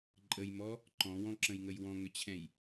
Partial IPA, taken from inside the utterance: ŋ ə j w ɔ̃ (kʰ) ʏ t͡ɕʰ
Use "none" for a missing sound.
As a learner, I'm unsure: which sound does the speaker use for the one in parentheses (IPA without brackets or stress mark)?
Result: ŋ